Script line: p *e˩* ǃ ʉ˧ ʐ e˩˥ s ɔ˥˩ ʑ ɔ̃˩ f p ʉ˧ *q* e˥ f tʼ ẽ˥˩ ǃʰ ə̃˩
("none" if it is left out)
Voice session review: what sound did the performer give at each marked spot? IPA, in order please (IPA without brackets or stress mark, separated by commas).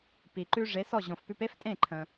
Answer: i˩, p